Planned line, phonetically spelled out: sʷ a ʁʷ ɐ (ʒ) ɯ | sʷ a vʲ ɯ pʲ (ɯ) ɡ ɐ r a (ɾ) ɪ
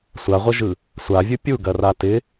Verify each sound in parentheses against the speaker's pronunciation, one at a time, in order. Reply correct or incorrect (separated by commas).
correct, incorrect, incorrect